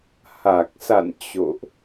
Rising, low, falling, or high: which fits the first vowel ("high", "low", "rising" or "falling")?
low